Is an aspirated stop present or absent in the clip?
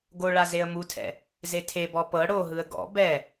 present